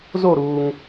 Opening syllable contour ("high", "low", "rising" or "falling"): falling